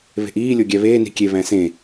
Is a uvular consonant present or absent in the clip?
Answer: absent